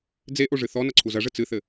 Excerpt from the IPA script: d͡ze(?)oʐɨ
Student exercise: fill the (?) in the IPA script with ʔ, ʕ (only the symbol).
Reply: ʔ